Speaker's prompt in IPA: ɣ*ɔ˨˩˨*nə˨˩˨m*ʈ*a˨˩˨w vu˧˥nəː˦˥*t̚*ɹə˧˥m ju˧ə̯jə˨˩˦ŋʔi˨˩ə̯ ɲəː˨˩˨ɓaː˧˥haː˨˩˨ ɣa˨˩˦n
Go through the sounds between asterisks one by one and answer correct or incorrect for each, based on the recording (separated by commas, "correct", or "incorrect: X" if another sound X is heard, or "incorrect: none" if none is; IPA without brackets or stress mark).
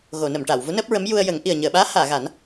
incorrect: o˨˩˨, correct, incorrect: p̚